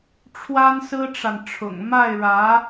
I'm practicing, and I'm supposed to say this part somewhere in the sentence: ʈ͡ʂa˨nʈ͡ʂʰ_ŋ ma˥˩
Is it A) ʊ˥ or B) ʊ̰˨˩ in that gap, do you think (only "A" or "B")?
B